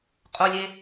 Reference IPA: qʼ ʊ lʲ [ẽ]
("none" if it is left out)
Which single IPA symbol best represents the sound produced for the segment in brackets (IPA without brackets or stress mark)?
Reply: e